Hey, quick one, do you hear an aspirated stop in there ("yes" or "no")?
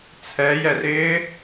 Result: yes